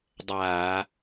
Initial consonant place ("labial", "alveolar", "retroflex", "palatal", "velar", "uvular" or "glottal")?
alveolar